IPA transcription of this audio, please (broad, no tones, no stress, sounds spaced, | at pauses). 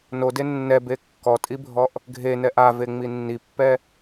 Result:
n o d e nː ɛ b e kː ɔ tʼ i bʱ ɔ ʔ | ɡʱ e n ɛ ʔ a v e ŋ͡m i nː i pː ɛ